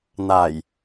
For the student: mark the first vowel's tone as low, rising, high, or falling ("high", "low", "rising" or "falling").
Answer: low